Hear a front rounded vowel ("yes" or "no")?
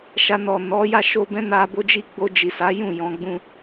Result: no